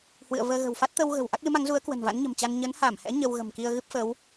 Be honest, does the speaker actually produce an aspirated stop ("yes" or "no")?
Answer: no